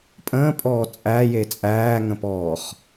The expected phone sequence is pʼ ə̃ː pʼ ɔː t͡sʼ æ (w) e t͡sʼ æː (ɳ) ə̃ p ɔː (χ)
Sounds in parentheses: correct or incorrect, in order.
incorrect, incorrect, correct

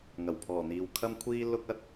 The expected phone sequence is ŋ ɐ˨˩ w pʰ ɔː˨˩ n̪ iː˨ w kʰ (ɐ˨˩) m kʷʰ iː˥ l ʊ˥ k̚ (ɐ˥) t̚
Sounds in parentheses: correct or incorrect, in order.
incorrect, correct

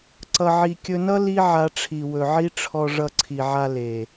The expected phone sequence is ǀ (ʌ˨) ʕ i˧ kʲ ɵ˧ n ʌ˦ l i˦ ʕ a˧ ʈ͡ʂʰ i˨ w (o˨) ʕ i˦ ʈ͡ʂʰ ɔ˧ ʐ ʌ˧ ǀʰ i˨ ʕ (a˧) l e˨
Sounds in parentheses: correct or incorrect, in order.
incorrect, incorrect, correct

